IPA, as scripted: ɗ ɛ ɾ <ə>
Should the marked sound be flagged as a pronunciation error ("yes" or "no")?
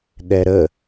no